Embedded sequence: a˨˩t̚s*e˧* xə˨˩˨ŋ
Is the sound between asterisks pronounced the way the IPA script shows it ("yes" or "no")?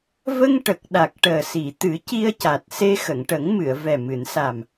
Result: yes